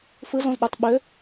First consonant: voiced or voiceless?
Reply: voiceless